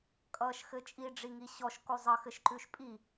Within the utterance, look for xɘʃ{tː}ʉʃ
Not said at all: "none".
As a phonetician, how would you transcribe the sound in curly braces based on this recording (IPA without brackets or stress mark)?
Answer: ǃ